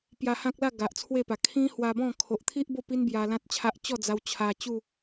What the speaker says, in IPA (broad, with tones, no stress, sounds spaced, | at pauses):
p j a˧ h ã˦ k̚ l a˥˧ ɡ a˨ ʔ t͡sʰ w e˥˧ p a˨˩ kʰ ĩ˦ h w a˧ b ɔ̃˥˧ kʰ o˨ ʔ t̪ʰ i˦ ʔ b o˥˧ p i˦ n b j a˧ l ã˦ t̚ t͡ɕʰ a˦ ʔ t͡ɕ ɔ˥˧ d͡z a˧ w t͡ɕʰ a˧ t͡ɕ u˥˧